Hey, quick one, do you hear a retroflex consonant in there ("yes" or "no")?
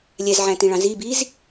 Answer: yes